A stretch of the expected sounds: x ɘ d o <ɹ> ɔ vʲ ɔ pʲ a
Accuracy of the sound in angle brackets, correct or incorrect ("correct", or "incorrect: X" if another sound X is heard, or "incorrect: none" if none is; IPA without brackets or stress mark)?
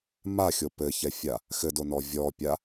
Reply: incorrect: n